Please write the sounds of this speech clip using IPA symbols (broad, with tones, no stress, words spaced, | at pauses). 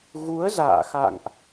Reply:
ɣu˨˦ə̯za̰ː˧˨ xa̰˧˨ŋʔ